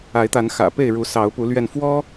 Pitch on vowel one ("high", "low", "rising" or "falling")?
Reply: rising